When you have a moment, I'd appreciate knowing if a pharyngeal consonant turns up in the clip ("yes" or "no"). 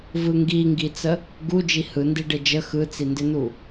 no